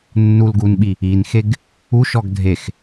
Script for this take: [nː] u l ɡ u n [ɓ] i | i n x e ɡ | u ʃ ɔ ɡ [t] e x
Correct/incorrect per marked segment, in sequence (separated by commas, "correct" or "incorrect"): correct, correct, incorrect